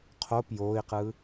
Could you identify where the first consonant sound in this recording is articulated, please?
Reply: uvular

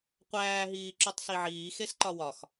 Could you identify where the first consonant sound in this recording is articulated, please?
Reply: uvular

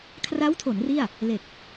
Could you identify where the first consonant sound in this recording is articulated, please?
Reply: velar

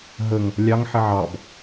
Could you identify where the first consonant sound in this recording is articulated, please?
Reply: glottal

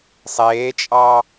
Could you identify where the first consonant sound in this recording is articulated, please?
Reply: alveolar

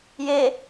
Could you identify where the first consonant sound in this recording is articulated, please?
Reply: palatal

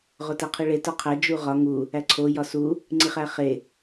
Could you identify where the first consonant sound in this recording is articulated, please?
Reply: uvular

